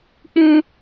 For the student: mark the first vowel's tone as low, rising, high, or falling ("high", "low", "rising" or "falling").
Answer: high